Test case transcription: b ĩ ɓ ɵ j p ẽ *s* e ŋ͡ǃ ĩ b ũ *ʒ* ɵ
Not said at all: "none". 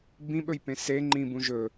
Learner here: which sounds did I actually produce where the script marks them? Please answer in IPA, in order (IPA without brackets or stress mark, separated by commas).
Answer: s, ʒ